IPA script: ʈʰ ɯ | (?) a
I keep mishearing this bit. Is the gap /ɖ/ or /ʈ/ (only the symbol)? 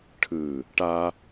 ʈ